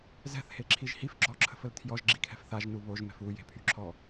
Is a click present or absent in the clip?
present